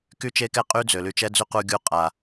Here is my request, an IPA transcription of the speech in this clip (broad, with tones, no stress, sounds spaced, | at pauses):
k y˦ t͡ʃ e˦ k ɛ˦ qʼ y˦ d͡z ø˨ l y˧ t͡ʃ ɛ˦ d͡z y˦ q u˧ ɡʲ u˧ qʼ a˨